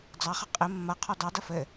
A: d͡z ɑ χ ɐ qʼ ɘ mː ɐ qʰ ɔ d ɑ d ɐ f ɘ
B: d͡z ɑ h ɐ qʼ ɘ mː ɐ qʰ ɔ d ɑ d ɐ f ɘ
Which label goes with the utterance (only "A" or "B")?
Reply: A